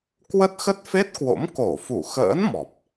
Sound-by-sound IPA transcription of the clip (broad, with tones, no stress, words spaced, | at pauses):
kwə˦˥t̚xə˦˥t̚fe˦˥t̚kwo̰˧˥m ko˧˩fu˧˩xə̰ː˧˥n mɔ˨˩p̚